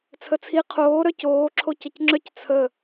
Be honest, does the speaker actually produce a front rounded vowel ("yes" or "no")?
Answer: yes